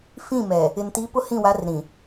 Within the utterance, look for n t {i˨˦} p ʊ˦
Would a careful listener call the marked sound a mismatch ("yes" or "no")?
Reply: no